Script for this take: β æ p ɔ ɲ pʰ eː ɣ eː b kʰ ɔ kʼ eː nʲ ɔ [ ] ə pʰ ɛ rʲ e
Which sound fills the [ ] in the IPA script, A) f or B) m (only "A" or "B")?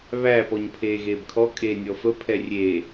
A